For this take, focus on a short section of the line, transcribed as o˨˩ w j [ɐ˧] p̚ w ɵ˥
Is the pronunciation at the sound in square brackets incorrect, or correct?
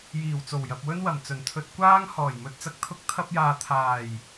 incorrect